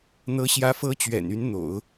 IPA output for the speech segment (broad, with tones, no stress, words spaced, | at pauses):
n̪ɤ˧˥ɕjä˧˥ fɤ˧˥t͡ɕɥɛ̰˨˩n y˧˥nn̪o̰˨˩˦ʊ̯